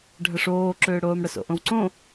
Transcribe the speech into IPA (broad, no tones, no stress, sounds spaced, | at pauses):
ɖʱ ə ʂ oː ǁ ʏː ɽ oː m ɽ ə s o̰ ʔ õ w ǀ õ